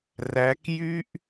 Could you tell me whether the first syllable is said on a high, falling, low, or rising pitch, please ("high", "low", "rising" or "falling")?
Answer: rising